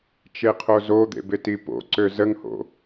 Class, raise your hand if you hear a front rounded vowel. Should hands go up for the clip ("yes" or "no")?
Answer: yes